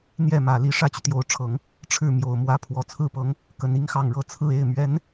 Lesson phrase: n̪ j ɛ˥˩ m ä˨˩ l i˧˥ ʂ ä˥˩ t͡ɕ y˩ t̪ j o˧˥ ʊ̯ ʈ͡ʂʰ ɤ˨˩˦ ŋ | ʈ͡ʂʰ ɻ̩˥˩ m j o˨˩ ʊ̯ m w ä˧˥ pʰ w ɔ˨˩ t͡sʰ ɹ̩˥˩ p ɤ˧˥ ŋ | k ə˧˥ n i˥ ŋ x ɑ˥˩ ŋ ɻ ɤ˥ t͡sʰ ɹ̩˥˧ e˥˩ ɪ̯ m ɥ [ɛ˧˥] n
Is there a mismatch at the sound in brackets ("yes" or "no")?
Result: no